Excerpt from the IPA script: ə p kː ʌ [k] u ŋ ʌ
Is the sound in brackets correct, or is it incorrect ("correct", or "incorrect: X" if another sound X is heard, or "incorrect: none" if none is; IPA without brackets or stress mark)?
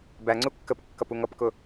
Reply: incorrect: p